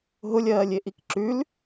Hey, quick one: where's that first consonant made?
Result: throat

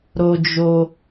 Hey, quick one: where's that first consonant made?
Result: tongue tip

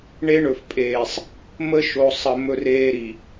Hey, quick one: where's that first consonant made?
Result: retroflex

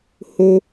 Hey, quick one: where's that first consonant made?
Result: throat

